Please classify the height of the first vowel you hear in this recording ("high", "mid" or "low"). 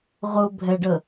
high